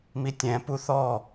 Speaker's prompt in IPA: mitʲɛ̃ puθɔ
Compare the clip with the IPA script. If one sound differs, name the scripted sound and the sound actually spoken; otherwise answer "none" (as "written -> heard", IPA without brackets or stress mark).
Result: none